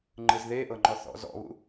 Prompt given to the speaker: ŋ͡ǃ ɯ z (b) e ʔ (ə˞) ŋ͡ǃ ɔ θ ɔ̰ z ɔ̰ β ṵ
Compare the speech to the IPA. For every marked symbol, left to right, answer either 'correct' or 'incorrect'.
incorrect: ð, incorrect: ɤ

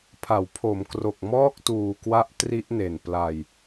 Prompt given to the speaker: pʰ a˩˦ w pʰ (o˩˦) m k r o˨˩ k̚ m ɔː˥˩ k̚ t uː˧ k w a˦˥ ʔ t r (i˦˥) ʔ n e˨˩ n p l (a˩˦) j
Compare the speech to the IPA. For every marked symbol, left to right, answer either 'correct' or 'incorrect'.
correct, correct, incorrect: a˧

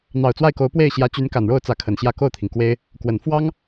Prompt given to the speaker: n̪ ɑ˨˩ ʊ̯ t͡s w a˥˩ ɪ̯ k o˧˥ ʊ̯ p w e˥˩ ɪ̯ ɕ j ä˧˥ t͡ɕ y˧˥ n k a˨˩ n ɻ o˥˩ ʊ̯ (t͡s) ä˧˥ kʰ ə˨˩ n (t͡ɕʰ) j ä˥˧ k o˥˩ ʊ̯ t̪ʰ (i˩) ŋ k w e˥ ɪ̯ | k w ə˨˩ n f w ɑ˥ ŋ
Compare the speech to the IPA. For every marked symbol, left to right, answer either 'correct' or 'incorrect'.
correct, incorrect: ɕ, correct

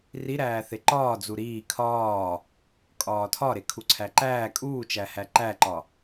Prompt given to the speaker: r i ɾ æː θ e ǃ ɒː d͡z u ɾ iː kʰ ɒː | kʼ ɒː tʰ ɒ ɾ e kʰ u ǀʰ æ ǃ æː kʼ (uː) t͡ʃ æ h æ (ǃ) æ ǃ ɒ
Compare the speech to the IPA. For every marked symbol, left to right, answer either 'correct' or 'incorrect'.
correct, correct

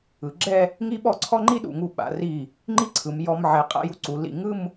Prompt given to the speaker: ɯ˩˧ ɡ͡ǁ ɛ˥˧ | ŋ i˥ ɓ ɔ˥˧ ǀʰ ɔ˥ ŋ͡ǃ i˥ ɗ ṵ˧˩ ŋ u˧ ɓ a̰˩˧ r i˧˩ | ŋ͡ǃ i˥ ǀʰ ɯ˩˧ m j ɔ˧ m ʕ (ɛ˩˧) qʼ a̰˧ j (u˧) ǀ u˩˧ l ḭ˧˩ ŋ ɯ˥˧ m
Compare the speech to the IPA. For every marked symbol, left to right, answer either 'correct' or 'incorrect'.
correct, correct

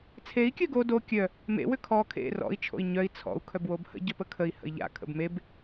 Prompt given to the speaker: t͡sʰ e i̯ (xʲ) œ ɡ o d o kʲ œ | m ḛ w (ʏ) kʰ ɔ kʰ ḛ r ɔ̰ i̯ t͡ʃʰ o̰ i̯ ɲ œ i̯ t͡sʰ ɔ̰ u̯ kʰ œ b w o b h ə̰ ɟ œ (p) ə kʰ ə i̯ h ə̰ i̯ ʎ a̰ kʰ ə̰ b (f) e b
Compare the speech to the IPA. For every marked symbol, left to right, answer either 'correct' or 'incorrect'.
incorrect: kʲ, correct, correct, incorrect: m

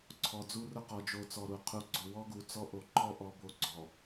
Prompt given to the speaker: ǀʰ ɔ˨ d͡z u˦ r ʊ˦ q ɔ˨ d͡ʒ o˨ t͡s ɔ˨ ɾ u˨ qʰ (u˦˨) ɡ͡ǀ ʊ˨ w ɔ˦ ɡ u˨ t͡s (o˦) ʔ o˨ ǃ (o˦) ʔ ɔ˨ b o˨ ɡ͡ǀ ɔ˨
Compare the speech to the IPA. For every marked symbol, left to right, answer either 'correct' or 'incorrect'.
incorrect: u˨, incorrect: ɔ˦, incorrect: ɔ˦

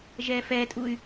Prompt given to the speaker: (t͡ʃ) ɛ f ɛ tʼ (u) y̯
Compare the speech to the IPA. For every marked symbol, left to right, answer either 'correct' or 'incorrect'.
incorrect: ʒ, correct

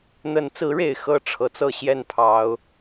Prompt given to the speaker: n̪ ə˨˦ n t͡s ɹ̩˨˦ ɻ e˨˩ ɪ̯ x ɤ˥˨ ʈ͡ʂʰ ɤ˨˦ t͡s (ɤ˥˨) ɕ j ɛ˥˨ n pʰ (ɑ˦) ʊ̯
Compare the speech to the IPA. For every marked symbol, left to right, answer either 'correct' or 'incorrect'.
correct, incorrect: ɑ˨˦

